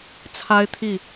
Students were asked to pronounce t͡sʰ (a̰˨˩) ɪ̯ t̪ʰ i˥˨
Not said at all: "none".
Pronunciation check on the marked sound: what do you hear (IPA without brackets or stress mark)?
a˦